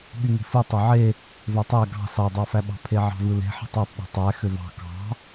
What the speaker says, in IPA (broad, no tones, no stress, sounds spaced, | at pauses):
ɓ y ŋ e̤ f ɯ tˤ ø ʕ e | v ø tˤ æ ɡ ɑ̤ s ɑ dˤ ɑ f æ ɓ ɑ̤ pʰ e ʕ ɑ̤ v ɯ l e̤ ħ e̤ tˤ ɑ tˤ ɗ e̤ tˤ æ x ø v ɑ̤ k ɑ̤